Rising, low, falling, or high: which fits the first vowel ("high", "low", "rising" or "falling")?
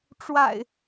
low